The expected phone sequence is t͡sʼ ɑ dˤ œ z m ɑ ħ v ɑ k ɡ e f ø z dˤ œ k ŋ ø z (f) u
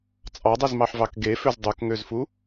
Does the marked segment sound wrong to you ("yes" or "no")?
no